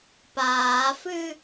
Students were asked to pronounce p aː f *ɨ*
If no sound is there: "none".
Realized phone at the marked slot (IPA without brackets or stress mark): ɨ